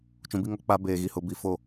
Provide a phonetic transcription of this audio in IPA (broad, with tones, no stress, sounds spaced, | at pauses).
t͡ʃ ũ˨ b i˦ ŋ ɔ˨ k͡p a˦ b eː˨ ɣ i˨ h ʊ˨ b i˨ f o˨